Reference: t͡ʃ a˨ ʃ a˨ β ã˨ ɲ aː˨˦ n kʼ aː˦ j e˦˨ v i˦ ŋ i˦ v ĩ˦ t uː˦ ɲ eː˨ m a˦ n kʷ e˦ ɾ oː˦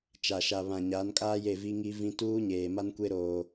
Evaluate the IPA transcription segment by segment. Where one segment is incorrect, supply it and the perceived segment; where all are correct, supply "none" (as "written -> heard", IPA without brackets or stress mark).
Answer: none